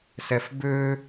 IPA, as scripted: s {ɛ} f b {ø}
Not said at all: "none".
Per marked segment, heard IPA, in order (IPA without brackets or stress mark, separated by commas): ɛ, ø